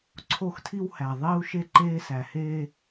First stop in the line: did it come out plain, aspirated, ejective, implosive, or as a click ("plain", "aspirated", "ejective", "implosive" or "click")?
click